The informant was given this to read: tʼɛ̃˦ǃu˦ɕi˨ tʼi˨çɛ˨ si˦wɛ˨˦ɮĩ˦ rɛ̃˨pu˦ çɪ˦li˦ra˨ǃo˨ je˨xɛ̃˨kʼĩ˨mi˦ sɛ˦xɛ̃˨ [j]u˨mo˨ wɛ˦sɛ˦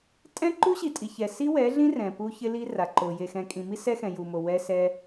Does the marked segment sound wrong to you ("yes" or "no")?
no